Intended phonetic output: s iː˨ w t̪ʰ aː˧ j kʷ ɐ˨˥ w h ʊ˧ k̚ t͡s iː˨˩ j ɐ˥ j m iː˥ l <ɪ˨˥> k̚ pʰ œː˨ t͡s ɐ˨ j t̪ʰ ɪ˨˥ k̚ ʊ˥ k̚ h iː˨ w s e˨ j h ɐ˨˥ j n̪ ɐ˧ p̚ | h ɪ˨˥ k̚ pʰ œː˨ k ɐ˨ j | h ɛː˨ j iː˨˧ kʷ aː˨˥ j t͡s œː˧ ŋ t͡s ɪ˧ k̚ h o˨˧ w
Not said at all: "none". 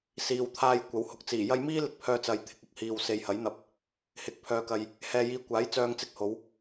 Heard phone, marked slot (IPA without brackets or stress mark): ɪ˨˥